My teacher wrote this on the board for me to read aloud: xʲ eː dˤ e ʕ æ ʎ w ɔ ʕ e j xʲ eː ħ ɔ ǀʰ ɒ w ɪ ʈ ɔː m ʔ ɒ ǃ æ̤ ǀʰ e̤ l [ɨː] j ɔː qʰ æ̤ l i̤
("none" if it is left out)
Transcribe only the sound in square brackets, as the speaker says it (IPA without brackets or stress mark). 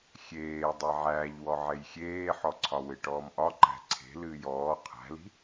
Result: ɨː